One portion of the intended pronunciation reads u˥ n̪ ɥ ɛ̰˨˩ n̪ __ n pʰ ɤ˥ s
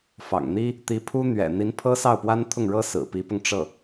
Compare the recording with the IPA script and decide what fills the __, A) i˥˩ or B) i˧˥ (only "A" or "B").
B